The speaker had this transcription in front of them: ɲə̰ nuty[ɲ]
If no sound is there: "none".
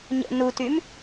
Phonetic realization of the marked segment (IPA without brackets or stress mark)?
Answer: m